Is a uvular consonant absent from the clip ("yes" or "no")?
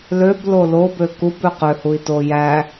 no